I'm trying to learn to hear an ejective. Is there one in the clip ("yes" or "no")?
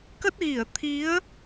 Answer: no